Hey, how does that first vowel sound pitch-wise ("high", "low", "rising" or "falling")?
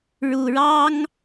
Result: low